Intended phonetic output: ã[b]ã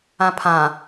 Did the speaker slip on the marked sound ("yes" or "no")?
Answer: yes